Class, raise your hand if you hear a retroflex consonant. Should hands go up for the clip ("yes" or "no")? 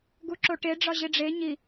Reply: yes